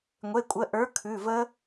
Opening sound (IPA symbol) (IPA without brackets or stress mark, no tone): ŋʷ